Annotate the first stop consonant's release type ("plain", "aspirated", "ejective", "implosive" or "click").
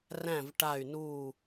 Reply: plain